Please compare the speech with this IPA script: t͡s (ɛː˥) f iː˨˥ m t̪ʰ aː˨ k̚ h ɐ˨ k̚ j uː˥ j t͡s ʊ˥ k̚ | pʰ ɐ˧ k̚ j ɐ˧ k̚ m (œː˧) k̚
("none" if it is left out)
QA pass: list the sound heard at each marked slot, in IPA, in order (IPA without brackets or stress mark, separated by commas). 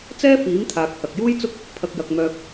ɛː˥, œː˧